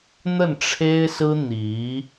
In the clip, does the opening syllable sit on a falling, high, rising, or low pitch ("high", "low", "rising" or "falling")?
falling